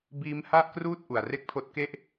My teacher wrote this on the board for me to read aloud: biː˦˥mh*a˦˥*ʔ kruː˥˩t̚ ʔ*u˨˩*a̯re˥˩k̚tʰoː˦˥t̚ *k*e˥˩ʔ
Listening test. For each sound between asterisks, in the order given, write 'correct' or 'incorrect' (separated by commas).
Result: incorrect, correct, correct